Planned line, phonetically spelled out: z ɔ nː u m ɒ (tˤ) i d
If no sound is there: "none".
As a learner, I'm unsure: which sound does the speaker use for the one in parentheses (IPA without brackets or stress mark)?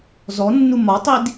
tˤ